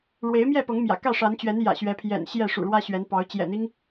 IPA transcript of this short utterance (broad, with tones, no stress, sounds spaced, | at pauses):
ɻ w e˨˦ ɪ̯ m j ɛ˥˨ p ɤ˨˦ ŋ m j ä̰˨˩ k ä˥˨ ʂ a˨˦ n t͡ɕ ɥ ɛ˨˦ n j ä̰˨˩ ɕ ɥ ɛ˨˦ pʰ j ɛ̰˨˩ n ɕ j ɛ˥˨ ʂ ṵ˨˩ ɻ w ä˦ ɕ ɥ ɛ˨˦ n p ɑ˨˦ ʊ̯ t͡ɕ j ɛ̰˨˩ n̪ i˦ ŋ